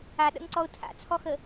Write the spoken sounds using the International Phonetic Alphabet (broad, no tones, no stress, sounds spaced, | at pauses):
a ɗ ə̰ ŋ ǀ ɔ ʊ̯ tʰ a̰ t͡sʰ ɔ x ə